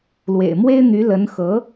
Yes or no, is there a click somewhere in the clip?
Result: no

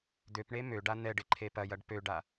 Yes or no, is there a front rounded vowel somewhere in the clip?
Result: yes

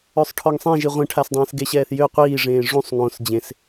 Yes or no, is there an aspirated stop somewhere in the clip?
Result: yes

